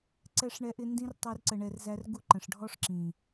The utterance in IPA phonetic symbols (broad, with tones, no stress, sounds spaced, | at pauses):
ǀ ɛ˧ ʂ ɳ ɛ˧ ʔ ɪ˧ n d ĩ˦ r tˤ i˧ r ǀ ə˨ ɳ ɛ˨ r z æ˦ r ɡ u˦ ǃ ə̃˨ ʂ ɖʱ ɔ˦ ʂ ǁ ĩ˨